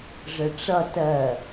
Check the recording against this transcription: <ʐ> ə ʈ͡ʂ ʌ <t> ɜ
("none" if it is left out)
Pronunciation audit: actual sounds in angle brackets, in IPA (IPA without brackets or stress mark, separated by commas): ʐ, t